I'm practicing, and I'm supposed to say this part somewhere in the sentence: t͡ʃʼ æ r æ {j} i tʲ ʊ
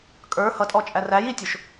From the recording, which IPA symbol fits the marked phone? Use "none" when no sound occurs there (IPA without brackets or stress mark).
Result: j